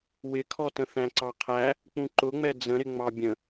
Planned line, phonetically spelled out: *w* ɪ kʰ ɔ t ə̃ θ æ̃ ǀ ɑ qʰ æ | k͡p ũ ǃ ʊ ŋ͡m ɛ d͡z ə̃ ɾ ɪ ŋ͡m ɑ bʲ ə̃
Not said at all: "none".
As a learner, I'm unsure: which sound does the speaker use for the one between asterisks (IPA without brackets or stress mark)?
w